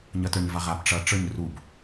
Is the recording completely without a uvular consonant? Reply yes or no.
no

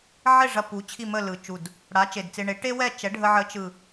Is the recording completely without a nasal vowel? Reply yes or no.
yes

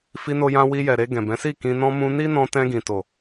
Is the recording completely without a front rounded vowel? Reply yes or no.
yes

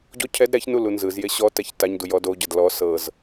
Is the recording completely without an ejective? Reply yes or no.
yes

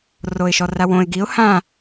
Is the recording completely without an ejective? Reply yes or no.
yes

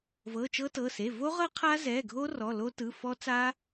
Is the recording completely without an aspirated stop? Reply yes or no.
no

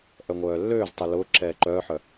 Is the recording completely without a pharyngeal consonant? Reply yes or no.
no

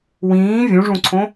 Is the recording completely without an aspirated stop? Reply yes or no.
no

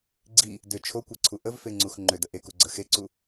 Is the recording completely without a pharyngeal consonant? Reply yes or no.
yes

